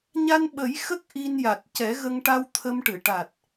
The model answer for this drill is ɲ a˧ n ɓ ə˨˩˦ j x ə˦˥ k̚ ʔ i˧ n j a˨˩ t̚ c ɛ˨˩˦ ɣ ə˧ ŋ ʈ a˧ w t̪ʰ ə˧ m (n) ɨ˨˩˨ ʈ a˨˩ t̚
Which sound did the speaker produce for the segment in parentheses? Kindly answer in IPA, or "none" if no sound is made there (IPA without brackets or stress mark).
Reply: ʈ